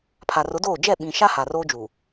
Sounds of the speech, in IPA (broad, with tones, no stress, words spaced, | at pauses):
pʰa˨rʊ˨˦doː˦˨ d͡ʒɛ˦˨ ɓĩ˨ ʃa˦ ha˨roː˦d͡ʒuː˨